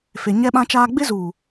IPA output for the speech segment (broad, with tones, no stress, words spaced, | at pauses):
fe˨ɲɛ˦ɓã˦t͡ʃaː˦ ɡ͡bɪ˦zu˨